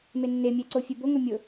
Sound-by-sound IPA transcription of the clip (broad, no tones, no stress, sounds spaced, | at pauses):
m e nː e mʲ ɛ ǀ o fʲ ɛ b o ŋ ɾ ʊ mʲ ʊ